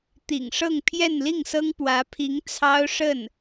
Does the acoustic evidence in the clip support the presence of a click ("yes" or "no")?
no